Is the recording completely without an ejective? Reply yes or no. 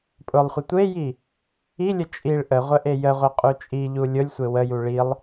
no